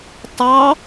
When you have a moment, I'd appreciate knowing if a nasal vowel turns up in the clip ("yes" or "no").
no